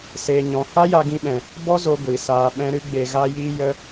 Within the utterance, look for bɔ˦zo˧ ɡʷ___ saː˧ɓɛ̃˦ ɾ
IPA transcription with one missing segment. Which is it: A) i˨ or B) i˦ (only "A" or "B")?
A